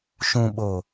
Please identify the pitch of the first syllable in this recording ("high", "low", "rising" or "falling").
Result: low